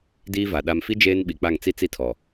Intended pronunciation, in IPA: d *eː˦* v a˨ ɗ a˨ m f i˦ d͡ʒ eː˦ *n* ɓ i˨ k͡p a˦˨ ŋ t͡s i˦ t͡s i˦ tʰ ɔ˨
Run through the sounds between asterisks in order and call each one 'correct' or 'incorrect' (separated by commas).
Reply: incorrect, correct